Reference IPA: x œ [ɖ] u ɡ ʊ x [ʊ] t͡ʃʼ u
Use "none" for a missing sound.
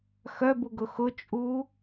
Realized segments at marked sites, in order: b, ʊ

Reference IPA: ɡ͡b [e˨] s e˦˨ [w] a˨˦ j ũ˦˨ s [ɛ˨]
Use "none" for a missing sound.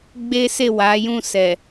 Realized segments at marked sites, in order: e˦, w, ɛ˨

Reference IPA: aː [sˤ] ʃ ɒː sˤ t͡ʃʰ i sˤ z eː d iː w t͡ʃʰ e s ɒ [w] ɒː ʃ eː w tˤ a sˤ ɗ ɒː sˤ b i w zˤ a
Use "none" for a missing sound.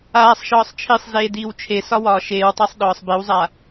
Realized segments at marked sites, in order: sˤ, w

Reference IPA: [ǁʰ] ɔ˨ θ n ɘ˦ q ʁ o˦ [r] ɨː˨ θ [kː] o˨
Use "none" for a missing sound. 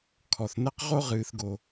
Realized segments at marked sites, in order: kʰ, ʁ, ɡ

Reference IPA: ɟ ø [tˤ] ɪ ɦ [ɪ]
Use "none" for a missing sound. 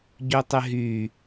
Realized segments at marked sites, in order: tˤ, y

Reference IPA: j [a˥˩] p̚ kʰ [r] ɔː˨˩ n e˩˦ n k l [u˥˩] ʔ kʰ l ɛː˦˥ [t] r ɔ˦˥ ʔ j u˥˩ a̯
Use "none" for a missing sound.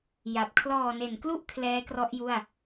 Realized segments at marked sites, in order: a˨˩, l, u˦˥, k

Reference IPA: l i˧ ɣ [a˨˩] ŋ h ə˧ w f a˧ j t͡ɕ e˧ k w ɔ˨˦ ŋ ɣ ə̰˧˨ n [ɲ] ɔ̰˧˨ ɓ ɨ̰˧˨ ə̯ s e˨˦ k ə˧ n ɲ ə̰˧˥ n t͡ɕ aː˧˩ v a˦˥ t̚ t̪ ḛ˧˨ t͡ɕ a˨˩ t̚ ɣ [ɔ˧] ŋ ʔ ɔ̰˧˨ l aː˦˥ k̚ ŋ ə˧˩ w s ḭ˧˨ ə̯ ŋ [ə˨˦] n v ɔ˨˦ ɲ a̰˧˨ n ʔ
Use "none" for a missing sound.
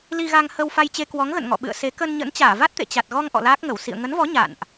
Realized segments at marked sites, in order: a˧, ŋ, ɔ˧, ə˨˦

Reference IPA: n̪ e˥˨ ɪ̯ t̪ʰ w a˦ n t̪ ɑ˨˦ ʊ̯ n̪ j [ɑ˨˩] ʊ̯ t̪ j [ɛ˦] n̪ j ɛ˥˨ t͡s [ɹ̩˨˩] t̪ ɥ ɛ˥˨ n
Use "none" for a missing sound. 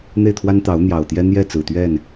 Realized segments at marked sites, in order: ɑ˨˩, ɛ˦, ɹ̩˨˩

